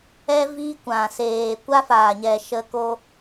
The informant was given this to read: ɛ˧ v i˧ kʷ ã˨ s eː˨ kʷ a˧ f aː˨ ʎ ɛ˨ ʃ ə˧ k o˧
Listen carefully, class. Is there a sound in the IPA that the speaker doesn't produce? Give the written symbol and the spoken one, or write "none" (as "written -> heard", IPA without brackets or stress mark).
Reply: ʎ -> ɲ